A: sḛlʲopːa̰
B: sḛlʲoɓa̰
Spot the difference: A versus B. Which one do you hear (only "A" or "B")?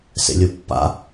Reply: A